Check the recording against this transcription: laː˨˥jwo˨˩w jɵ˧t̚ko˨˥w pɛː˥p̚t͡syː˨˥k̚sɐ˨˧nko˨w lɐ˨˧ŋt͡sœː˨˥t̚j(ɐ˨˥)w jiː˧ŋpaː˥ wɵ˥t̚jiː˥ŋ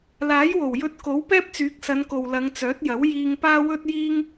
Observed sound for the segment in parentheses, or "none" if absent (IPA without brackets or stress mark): ɐ˨˥